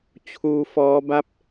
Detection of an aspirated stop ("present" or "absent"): present